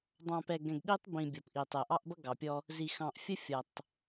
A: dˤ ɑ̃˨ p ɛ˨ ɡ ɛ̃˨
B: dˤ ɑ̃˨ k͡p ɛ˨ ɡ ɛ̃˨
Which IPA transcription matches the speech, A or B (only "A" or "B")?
A